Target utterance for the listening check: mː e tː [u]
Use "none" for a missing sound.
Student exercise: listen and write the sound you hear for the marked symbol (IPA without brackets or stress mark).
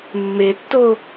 o